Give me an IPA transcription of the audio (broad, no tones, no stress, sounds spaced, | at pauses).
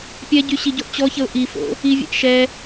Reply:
pʲ ɛ ɟ y ɕ i ɟ o ʔ t͡ɕ ɔ ç ə ʊ̯ ʔ i f o̰ | i vʲ ɛ̰ ʔ ʃ ɛ